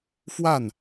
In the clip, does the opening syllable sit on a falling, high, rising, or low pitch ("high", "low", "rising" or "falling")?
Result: falling